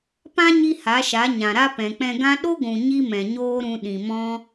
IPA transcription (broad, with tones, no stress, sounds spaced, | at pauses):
p ã˦ ɲ i˦ h a˨˦ ʃ a˨˦ ɲ ã˨ ɾ a˦ p ɛ̃˨ k͡p ɛ̃˧ ɡ ã˦ ɗ o˦ ɡʷ ũ˨ ɲ i˦ m ɛ̃˨ ɲ oː˦ ɾ ũ˧ ɗ ĩ˨ m ɔ̃˦